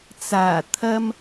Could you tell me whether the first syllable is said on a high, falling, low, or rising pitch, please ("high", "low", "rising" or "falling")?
low